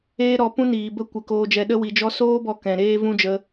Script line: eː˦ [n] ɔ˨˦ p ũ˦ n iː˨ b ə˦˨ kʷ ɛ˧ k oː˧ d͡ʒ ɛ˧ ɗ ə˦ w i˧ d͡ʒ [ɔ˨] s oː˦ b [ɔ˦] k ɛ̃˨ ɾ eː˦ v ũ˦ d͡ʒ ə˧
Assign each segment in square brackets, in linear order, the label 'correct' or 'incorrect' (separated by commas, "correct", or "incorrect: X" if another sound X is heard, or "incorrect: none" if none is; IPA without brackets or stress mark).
incorrect: ɾ, incorrect: ɔ˦, incorrect: ɔ˧